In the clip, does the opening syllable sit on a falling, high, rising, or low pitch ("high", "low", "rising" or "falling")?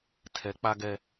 rising